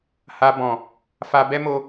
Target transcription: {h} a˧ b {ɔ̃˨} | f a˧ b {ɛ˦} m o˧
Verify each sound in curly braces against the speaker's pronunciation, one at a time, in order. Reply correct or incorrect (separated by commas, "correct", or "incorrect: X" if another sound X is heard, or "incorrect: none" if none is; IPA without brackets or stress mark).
correct, correct, correct